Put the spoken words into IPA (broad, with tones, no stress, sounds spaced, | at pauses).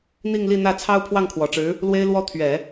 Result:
n̪ i˥˧ ŋ l i˥˧ n̪ ä˥˩ t͡sʰ ɑ˥ ʊ̯ pʰ w ɑ˥˩ ŋ kʰ w ɔ˨˩ ʈ͡ʂ ɻ̩˧˥ | l w e˥ ɪ̯ l w ɔ˥ t̪ʰ ɥ ɛ˨˩˦